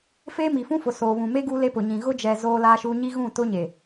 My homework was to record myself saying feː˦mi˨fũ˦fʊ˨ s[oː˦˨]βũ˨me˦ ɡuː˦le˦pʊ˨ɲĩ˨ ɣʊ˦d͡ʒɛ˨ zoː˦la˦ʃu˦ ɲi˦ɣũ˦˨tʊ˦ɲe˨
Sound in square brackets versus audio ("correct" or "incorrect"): incorrect